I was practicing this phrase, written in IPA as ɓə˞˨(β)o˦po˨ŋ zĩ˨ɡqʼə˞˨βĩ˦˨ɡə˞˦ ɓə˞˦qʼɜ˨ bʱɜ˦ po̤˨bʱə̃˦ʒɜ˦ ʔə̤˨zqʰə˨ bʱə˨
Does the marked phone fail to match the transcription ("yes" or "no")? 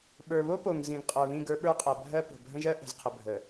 no